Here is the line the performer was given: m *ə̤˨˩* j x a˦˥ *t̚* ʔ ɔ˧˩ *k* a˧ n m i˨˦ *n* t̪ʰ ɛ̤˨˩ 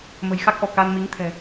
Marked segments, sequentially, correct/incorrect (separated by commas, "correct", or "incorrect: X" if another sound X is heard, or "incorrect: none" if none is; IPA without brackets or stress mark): correct, incorrect: k̚, correct, incorrect: ŋ